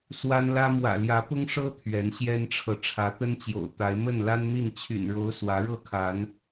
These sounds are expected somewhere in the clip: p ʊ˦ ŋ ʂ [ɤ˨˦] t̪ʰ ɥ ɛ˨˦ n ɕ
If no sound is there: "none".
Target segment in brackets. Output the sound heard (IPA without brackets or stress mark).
ɤ˦